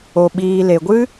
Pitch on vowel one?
low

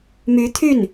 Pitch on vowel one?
rising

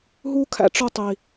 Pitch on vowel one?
high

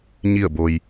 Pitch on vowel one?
falling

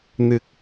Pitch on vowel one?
low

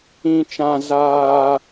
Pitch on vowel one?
low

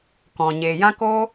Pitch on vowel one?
low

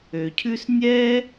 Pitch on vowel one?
low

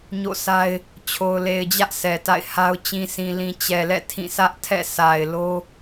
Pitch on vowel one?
falling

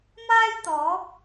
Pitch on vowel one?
high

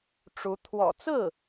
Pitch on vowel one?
rising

